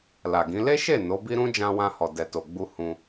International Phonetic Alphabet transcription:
l a˨ ɡ ĩ˨˦ l e˦ ʃ e˦˨ n o˨˦ b i˦ ɾ ũ˦ d͡ʒ ã˧ w ã˧ h ɔ˨ d ɛ˨ t o˨ ɡ͡b u˧ h ũ˧

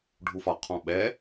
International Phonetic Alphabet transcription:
ɖʱ u f ɒ qʰ ɔ̃ ɓ ɛ

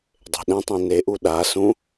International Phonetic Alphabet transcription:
dˤ e̤ ɗ ɛ̃ tˤ ĩ n e ʔ u ɗ a s ũ

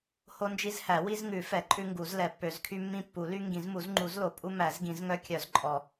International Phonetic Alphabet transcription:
h o˦ n d͡ʒ i˦ z h æ˨˩˦ w i˦ z ŋ ʉ˨˩˦ f ɛ˨˩˦ ǃʼ ʉ˦ ŋ ɡ u˨˩˦ z l ɛ˨˩˦ pː ø˨˩˦ z kʰ y˦ mː ĩ˦ pː u˨˩˦ l y˦ ŋ ɡ ĩ˨˩˦ z m u˨˩˦ z ŋ͡ǃ u˨˩˦ z l o˨˩˦ pʼ u˦ m æ˨˩˦ z ɡ ĩ˨˩˦ z ŋ œ˦ kʲ œ˨˩˦ z ǃʼ ɔ˨˩˦

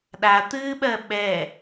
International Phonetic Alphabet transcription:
ɗ a t̪ ɨː ɓ ɜ ɓ ɛ

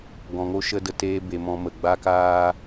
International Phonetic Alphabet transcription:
ɡ ɔ̃˧ ŋ o˦ ʃ ə˦ d ə˧ t eː˦ b e˧ m ɔ̃˧ m ə˨ ɡ͡b a˦ k aː˦

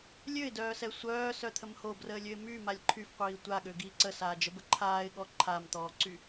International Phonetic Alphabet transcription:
lʲ ø ɪ̯ d œː s ɛ sʷ œː s œ t̪ʰ ə m h o b r əː lʲ ø ɪ̯ m y m a lʲ ǃʰ y f qʷ iː tʷ a ɠ ø ɡ iː ǀ ə s aː d͡ʒ ə b ə ǃʰ aː ɪ̯ ɠ ɔ ǃʰ a m t̪ ɔː ǀ y

